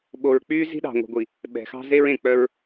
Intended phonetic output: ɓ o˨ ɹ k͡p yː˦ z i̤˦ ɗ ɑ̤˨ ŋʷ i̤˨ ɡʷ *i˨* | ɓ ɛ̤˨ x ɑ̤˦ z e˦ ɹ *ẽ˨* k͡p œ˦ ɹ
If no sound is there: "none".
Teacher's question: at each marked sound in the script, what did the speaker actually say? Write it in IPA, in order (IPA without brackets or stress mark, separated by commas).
i˨, ẽ˨